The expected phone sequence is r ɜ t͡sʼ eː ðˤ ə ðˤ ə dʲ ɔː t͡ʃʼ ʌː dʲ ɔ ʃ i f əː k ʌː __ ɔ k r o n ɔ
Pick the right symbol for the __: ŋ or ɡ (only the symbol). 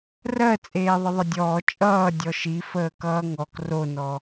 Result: ŋ